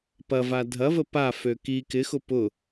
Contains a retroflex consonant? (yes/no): no